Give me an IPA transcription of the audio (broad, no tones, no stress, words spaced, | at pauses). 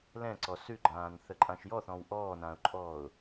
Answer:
lɛ̃ǀɔ sʉɡ͡ǃãːnθəǃʼãʃ jɔθɔ̃w ʔɔːnãʊ̯ǃʼɔːʊ̯